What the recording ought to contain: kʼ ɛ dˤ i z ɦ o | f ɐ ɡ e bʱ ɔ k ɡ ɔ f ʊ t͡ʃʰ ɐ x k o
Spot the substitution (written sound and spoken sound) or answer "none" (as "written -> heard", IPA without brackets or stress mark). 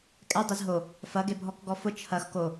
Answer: none